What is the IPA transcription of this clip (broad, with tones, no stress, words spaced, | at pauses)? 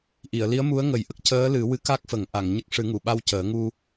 ʔi˨˩˨ə̯ li˧˥ə̯mu˧˥ə̯ŋə˨˩˦jʔə˦˥k̚ cəː˧˥lɨ˨˩˦ wɨ˧˥ka˦˥k̚fə˨˩˦ŋ ʔa˨˩˨ŋɲə˦˥k̚ ʂɨ˨˩˦ŋu˨˩˨ɓa˧w cəː˨˩˦ŋu˧